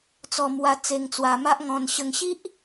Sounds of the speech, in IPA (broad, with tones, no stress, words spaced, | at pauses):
t͡sɔ˧mwa˧ t͡se˧ŋt͡swa˧ma˦ʔŋɔ̃˧n ɕə˧ŋɕi˦ʔ